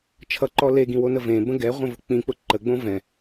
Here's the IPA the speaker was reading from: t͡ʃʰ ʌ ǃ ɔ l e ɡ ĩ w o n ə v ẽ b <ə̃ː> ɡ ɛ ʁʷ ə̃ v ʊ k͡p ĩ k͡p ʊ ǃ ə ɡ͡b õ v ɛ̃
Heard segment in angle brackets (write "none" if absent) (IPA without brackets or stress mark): ə̃